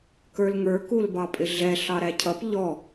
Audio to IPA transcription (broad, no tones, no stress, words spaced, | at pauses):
kə˞lŋə˞ kulbɑpʼɪɮɛ ɬɑɾæcʰʌp ʎɔ